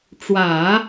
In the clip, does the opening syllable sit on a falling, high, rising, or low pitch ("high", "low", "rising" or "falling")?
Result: low